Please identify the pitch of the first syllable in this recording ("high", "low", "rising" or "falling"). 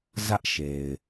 high